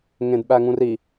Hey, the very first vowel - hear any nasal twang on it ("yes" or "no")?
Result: yes